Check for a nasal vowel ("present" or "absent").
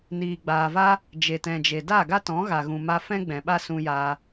present